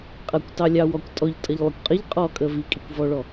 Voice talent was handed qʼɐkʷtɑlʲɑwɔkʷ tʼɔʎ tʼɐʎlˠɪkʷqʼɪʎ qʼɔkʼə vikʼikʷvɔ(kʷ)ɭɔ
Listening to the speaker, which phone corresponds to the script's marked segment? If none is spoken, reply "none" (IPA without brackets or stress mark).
none